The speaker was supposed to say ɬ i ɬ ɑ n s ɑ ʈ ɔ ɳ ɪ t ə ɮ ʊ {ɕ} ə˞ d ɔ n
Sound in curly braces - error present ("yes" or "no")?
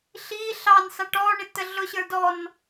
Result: no